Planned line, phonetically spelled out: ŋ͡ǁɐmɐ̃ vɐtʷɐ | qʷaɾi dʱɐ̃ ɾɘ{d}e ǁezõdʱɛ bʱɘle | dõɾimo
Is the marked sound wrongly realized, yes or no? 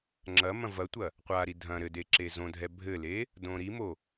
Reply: no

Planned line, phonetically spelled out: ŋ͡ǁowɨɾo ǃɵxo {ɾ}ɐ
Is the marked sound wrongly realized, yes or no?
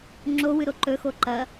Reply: yes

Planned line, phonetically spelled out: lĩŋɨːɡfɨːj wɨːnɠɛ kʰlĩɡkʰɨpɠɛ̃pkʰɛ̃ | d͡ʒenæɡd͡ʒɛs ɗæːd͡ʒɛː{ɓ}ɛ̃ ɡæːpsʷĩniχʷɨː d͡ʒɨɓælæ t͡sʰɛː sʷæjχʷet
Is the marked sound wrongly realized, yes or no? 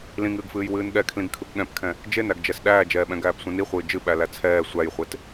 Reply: no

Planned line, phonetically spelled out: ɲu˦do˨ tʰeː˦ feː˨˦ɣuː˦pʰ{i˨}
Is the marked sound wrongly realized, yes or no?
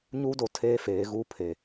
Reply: yes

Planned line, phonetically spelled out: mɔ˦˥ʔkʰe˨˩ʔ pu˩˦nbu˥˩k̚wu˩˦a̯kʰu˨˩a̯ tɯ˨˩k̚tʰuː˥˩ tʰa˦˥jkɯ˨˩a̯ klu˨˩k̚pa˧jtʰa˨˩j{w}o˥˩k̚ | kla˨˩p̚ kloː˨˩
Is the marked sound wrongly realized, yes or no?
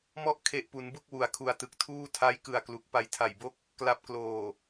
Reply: yes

